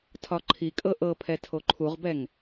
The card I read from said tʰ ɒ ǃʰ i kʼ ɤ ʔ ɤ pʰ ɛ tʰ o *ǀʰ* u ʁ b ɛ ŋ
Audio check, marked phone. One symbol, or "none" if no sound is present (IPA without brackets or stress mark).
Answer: ǃʰ